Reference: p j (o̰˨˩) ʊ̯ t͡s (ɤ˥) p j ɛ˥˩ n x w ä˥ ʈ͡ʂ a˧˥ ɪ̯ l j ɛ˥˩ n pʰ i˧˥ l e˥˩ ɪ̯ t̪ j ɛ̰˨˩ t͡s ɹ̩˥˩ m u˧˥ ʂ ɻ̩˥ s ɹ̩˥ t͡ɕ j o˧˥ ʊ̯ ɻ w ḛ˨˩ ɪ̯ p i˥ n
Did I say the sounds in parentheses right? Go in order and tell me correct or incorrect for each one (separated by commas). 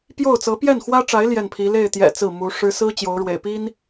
incorrect, incorrect